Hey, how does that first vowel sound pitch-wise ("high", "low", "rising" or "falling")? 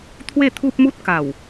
falling